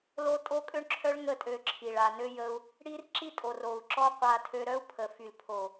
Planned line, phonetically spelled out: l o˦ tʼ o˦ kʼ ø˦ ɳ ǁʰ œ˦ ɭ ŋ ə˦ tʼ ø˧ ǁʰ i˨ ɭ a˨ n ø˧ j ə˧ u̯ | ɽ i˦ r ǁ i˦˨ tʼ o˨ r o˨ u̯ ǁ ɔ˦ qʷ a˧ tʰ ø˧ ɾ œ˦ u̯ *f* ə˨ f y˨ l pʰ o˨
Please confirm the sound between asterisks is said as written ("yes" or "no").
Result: no